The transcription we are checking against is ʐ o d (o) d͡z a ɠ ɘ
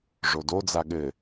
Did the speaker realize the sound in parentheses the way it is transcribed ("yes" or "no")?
yes